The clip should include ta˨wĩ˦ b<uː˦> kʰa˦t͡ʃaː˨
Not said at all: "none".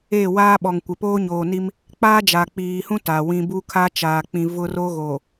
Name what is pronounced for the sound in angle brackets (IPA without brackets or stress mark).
u˦